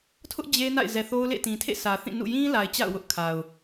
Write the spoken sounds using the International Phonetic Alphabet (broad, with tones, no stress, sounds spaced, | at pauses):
tʰ ʊ˦ ʔ d͡ʑ e˦ n a̰˦˨ ɪ̯ z ɛ˨ θ o˦ ʊ̯ l ḛ˦˨ t ĩ˨ tʰ ḛ˦˨ sʰ ä˨ θ ĩ˦˨ n ṵ˦˨ j ĩ˦ l a˨ ɪ̯ t͡ɕ a̰˦˨ ʊ̯ w ʊ˦ ʔ kʰ a˨ ʊ̯